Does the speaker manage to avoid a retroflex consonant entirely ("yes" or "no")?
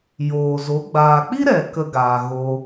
yes